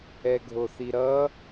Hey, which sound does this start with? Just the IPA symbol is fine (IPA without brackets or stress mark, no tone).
ɛ